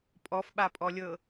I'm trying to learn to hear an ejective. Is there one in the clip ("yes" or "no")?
yes